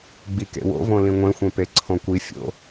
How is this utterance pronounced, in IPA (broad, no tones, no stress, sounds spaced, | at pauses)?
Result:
ɡ͡b i k ḛ w o̰ v õ l ĩ ŋʷ ẽ xʷ ẽ p e ǀʰ õ kʷ i fʲ o̰